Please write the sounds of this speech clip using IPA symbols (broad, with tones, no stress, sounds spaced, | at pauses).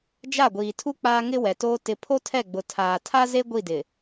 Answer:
d͡ʒ a˦˨ ɡʷ iː˨ tʰ u˦ k͡p aː˦ ŋ ɪ˦ w ɛ˨ t oː˦ t ɪ˦ pʰ o˦ tʰ ɛ˦˨ ɡ͡b ʊ˨ tʰ aː˨ tʰ a˦ z e˦ ɡʷ i˦˨ d ɪ˨